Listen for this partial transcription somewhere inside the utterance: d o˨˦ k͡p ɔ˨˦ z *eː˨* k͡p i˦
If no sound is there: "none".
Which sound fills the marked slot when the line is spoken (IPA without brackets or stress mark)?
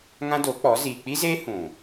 iː˨